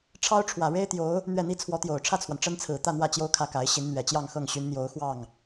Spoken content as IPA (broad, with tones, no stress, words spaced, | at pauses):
ʈ͡ʂʰɑ˥ʊ̯ʈ͡ʂʰwä˨˩ ɻe˥ɪ̯t̪jo˧˥ʊ̯ | n̪ɥɛ˥˩n̪i˥ t͡sʰwɔ˧˥t̪jo˨˩ʊ̯ ʈ͡ʂʰä˥˩t͡sʰwa˩n ʈ͡ʂə˥nt͡sʰɹ̩˨˩ t̪ä˥˧n̪wä˥˩ t͡ɕjo˥ʊ̯kʰä˥˩ka˧˥ɪ̯ ɕi˧˥nn̪ɥɛ˨˩ t͡ɕjɑ˥˧ŋxɤ˥˩ŋɕy˧˥n n̪jo˧˥ʊ̯ xwɑ˥˩ŋ